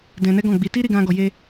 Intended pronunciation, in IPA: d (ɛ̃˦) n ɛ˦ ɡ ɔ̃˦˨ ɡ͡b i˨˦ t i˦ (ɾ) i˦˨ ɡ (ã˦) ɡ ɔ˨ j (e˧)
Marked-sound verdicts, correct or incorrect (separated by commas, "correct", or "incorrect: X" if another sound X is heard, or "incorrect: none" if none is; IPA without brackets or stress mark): incorrect: ɛ̃˧, correct, incorrect: ã˧, correct